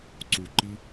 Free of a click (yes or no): no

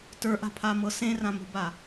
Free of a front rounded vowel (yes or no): yes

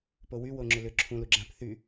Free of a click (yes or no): no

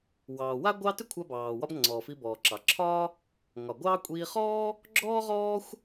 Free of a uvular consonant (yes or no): no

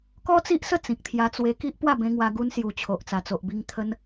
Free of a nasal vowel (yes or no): no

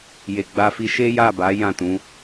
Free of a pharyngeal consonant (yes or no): yes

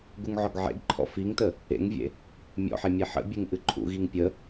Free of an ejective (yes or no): yes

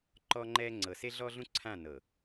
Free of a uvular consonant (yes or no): yes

